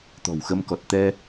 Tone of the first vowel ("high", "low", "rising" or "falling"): low